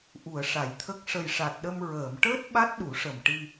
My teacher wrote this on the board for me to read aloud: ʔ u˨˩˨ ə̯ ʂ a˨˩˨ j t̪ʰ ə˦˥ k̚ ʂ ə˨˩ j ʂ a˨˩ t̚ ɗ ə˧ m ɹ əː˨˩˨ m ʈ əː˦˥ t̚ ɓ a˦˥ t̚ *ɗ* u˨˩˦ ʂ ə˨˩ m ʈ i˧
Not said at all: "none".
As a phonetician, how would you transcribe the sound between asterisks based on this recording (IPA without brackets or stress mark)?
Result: ɗ